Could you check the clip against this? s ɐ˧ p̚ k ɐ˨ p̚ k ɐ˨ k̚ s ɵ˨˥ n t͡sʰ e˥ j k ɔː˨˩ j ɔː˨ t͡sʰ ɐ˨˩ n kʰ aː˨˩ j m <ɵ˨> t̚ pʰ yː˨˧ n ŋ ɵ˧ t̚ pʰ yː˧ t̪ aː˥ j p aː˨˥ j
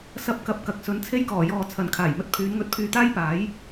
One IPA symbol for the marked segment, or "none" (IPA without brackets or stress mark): ɵ˧